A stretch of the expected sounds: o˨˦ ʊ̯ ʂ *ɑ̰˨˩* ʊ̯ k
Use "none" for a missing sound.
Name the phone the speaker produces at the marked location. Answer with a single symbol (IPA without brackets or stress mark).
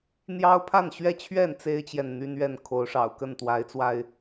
ɑ̰˨˩